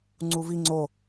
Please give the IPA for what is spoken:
ŋ͡ǀuvi ŋ͡ǀo

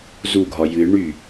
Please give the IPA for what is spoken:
zuɡʱɒ jɨ ɳy

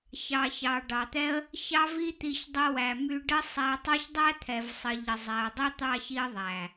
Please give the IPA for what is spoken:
çɑ˨çɑ˨ ɖɑ˨t̪ɛ˦ə̯ | çɑ˦vi˦ t̪i˧ç dˤə˧wæ˨my˧ ɖə˦sˤæ˧ tˤɑ˦çdˤæ˦t̪ʰɛ˨vsˤə˨ ʎə˨zˤɛ˨ə̯ dˤɛ˦t̪ɑ˦˨çi˧ə̯ ðˤæ˨

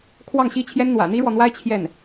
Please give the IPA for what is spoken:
kʰwɑ˥˩ŋɕi˥t͡ɕʰjɛ˥n n̪wä̰˨˩n̪i˥ɻwɔ˨n̪wa˥ɪ̯ t͡ɕʰjɛ˥˩n

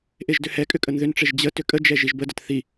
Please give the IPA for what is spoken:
ʔeʒdʏhɛkʼʏ kʼənðʏnʈ͡ʂeʒ d͡ʑə tʏkʼəd͡ʒɛ ʒiʒbədət θi

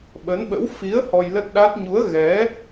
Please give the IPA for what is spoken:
ɓə˨˦nɓə̰˧˥w fi˨˦ə̯ hɔ˧jlə˦˥t̚ɗa˦˥t̚ ɲu˨˦ə̯ɣɛ˨˦

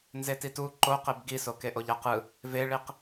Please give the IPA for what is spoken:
nzetitu ǃoqeb ɡiso keʔoʎaqɯ | veɭiq

